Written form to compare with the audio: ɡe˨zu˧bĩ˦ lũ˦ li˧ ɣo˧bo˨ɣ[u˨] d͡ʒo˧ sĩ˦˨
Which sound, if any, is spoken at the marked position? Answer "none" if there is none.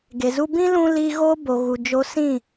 u˨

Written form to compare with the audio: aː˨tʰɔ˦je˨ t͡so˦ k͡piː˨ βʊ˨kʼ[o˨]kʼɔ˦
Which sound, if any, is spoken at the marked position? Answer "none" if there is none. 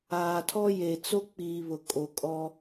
o˨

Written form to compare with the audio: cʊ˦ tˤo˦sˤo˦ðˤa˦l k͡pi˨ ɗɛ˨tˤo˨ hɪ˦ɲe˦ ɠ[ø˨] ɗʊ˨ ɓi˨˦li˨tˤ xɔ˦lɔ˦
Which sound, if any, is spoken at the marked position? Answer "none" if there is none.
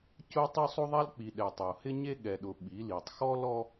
ɛ˨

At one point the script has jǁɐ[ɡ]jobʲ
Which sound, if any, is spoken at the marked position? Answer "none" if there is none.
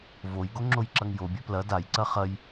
ŋ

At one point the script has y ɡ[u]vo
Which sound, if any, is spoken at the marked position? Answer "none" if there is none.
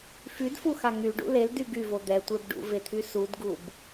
y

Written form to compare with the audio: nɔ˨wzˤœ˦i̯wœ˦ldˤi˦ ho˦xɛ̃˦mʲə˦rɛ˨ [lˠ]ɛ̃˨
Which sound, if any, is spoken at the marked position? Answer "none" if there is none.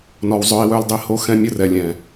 lʲ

